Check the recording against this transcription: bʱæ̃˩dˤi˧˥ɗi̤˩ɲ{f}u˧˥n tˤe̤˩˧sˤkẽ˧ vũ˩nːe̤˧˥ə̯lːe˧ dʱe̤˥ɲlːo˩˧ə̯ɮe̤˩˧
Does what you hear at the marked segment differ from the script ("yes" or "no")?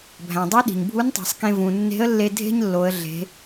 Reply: yes